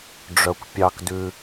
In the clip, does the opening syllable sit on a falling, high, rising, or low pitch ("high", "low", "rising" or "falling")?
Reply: low